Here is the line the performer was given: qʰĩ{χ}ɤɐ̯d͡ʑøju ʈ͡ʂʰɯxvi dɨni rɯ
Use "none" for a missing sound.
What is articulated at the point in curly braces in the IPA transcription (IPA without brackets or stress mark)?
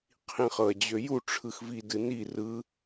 χ